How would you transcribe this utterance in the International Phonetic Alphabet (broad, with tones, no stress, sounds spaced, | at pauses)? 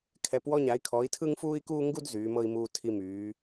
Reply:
kʰ ɛ˨˦ p w ɔ˦ ɲ a˨˦ i̯ kʰ ɔ˨˦ i̯ tʰ ɯ˦ ŋ f uː˦ i̯ k uː˦ ŋ ɡ u˦ d z yː˨˦ m ɤ˦ i̯ m uː˦ tʰ i˦ m yː˨˦